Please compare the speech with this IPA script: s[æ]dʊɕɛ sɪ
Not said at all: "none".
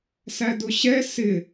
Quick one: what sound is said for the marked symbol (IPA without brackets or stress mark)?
æ